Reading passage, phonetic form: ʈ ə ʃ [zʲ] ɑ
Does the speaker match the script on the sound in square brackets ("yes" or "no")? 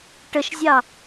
yes